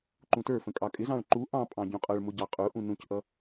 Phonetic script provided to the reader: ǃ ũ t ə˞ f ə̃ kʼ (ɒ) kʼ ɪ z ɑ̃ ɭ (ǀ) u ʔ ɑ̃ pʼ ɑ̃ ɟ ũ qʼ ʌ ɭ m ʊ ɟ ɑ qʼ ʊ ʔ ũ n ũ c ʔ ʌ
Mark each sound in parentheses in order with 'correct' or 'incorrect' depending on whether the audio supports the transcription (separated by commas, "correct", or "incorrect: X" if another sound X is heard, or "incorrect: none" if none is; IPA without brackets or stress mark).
incorrect: ɑ, incorrect: ǃ